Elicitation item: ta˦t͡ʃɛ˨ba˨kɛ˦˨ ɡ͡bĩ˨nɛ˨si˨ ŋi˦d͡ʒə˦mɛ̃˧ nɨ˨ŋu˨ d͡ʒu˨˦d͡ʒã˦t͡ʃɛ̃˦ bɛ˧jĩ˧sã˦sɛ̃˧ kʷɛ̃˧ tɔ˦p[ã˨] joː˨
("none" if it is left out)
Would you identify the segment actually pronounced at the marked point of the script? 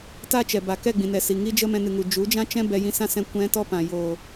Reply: ã˨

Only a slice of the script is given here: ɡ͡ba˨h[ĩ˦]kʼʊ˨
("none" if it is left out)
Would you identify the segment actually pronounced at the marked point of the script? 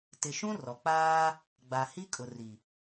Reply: i˦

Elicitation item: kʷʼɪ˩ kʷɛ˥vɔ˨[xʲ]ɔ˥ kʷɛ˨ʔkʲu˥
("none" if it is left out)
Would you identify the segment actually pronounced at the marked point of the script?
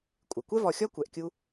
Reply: xʲ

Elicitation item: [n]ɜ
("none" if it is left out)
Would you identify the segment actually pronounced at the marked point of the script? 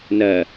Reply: n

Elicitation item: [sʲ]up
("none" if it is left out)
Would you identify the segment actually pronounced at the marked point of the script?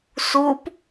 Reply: s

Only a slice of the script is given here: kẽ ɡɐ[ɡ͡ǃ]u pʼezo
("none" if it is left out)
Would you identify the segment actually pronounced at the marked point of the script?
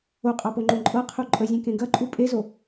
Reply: ǃʼ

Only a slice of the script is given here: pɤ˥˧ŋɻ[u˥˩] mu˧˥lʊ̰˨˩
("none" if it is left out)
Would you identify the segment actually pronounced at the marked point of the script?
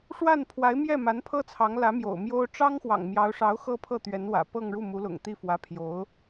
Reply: u˥˩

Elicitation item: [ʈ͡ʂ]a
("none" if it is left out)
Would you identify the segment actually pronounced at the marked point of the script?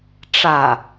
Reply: ʈ͡ʂ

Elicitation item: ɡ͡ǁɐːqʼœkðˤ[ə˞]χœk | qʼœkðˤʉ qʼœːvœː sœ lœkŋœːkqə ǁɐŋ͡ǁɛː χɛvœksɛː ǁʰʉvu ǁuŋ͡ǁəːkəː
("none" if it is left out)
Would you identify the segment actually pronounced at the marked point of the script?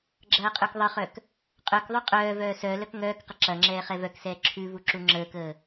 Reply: ə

